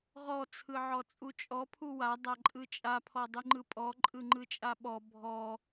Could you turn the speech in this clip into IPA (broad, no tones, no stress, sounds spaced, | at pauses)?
ʁ ɔ t͡sʰ ɯ ʕ ɔ t͡sʼ u t͡ʃʼ ɔ pʰ u w a dˤ a ǃʼ ɯ t͡ʃʼ a pʰ ɔ dˤ ɯ ŋ͡ǃ ɯ pʼ ɔ ǃʼ ɯ ŋ͡ǃ ɯ t͡ʃʼ a ɓ ɔ bʱ ɔ